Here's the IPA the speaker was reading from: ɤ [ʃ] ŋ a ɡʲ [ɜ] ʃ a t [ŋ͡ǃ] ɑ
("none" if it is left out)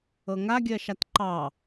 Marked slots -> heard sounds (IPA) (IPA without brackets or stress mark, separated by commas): none, ɜ, ǃ